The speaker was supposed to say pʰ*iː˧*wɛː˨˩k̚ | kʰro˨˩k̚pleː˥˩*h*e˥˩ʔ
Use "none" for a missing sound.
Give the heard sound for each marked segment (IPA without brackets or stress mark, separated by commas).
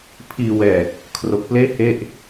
iː˧, h